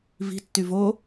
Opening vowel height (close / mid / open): close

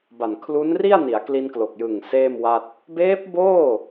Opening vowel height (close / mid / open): open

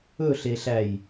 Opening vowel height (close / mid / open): mid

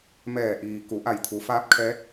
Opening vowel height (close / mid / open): mid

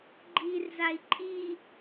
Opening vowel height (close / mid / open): close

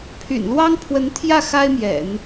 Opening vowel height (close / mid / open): close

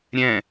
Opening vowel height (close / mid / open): mid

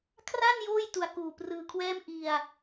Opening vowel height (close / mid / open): open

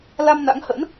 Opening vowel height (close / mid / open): open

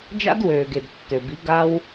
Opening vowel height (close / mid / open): open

